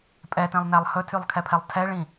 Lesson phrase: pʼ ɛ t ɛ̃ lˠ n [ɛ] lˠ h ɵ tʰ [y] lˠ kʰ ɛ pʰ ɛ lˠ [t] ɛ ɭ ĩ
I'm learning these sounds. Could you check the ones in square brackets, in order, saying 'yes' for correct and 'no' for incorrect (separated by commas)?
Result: no, yes, no